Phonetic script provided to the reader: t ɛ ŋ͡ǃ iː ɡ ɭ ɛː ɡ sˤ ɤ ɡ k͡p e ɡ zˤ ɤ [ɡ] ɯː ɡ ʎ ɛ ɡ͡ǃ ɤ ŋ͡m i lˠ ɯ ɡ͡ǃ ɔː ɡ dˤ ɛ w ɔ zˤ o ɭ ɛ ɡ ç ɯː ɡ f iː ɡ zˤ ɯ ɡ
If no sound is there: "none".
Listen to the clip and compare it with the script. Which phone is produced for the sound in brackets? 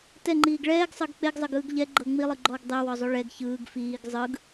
ɡ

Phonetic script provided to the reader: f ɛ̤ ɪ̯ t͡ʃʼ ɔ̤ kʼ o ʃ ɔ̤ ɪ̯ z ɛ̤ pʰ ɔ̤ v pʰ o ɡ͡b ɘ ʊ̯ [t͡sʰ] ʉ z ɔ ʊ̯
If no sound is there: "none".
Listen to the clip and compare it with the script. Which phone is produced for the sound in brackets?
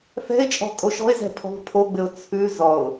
t͡sʰ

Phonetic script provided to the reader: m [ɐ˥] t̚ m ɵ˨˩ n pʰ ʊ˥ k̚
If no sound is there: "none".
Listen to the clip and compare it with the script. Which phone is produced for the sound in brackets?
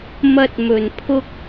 ɐ˥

